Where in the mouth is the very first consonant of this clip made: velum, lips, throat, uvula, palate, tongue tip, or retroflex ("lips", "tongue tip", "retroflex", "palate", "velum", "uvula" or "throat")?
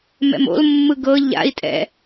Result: lips